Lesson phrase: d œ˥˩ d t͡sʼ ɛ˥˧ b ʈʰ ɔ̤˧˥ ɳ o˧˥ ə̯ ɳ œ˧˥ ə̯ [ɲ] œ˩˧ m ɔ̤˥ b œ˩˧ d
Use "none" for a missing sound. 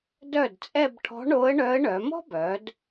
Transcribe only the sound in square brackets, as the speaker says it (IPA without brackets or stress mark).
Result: ɳ